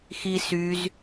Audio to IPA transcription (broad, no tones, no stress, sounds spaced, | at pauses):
x i s y z